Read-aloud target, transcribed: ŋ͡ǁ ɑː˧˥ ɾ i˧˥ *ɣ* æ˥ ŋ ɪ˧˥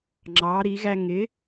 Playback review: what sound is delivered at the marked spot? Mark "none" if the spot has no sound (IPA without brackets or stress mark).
ɣ